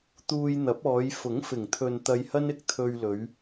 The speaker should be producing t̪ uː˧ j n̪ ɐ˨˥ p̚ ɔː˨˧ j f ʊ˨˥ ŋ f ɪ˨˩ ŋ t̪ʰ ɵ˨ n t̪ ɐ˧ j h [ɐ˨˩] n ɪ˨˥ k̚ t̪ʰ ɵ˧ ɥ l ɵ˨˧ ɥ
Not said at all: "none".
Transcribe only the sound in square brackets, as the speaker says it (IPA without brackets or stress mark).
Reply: ɐ˥